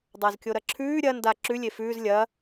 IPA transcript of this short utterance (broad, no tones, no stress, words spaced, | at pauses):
dˤazkʲoɾɐǁʰʉː ɾʲɐ nda ǁʉlʲe fʉːz lʲɐː